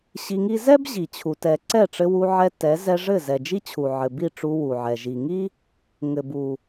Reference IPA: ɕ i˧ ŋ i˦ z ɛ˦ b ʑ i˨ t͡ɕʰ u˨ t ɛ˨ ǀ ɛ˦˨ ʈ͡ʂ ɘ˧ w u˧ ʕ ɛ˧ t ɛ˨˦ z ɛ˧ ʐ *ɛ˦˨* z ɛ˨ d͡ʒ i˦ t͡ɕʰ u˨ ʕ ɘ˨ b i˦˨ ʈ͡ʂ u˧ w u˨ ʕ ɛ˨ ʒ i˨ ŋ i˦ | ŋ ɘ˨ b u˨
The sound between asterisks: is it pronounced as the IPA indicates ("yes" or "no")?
no